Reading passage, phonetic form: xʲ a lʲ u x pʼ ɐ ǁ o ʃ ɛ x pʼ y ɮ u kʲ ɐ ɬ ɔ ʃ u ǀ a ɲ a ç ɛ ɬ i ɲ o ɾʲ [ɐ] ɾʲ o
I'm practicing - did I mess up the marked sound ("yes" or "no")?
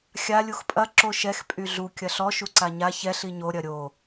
no